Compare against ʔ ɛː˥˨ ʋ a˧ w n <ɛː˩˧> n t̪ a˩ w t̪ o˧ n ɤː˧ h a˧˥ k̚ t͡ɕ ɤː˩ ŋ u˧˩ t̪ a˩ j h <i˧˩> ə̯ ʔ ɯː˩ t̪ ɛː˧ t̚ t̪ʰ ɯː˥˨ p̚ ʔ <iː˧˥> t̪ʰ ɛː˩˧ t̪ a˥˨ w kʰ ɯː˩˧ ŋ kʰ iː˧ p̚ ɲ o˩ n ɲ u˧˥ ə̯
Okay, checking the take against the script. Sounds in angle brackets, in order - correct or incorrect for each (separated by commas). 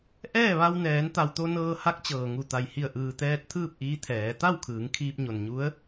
correct, correct, correct